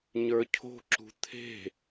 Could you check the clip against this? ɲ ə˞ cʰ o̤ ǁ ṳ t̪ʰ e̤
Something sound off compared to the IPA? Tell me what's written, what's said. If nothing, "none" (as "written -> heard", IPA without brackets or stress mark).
none